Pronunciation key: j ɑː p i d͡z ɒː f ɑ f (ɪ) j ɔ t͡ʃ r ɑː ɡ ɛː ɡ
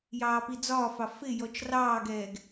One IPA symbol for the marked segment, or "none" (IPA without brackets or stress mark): ɪ